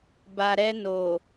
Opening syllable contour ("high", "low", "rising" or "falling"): low